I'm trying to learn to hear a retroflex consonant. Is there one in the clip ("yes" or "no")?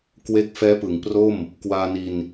no